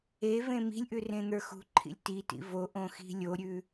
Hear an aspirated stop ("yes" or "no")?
yes